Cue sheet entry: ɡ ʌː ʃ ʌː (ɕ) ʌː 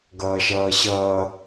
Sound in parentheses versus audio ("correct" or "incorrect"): correct